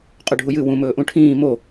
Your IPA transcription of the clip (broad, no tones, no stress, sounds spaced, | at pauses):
qʼ ɵ ɖʱ u j ɨ w ũ m ɵː ʔ ũ ʈʰ ĩː m o